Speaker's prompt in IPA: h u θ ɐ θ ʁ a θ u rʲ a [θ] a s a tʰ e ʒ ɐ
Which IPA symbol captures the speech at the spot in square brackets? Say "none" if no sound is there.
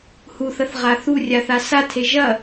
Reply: θ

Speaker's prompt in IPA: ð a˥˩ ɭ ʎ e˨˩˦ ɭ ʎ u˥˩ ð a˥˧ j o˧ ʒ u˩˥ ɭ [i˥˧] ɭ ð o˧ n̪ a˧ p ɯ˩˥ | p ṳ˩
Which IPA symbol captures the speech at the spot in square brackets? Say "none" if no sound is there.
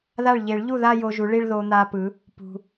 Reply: i˥˧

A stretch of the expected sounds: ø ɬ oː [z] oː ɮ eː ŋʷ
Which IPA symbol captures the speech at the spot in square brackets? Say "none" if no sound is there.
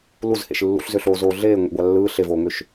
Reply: z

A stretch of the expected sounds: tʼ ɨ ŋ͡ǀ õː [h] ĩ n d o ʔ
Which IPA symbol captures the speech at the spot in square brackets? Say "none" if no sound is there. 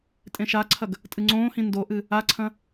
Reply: h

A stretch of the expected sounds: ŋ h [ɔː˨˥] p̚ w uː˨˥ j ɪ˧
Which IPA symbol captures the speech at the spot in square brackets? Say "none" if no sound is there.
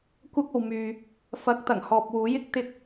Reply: ɔː˨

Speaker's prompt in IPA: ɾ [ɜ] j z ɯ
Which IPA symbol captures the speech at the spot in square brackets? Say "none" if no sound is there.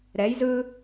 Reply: ɛ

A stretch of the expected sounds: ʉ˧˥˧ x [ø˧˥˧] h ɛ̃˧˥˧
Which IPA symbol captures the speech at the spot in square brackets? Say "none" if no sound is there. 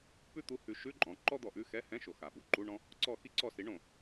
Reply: ɛ˧˥˧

